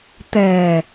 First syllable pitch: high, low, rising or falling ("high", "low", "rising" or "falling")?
low